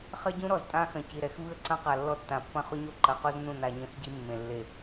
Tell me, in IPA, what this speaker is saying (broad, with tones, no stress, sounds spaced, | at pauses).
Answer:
χ ɐ˦ ɟ ũ˦ ɾ ɔ˨ z tʼ ã˦ x ɐ̃˨ c i˨ ɾ ɛ˨ x v ɨ˦ ə̯ ǀ ɐ̃˦ q a˨ lː ɔ˦ tː ã˨ pː ɐ̃˦ χ o˦ ɲ o˦ ǃ ɐ˨ q o˦ z n ũ˦˨ n a˨ ɲ ɐ̃˦ x ɟ i˦ mː ẽ˨ lː e˨